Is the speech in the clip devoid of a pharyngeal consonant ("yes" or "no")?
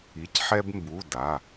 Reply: no